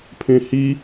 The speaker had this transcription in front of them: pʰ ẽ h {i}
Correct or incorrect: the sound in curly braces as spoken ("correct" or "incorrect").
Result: correct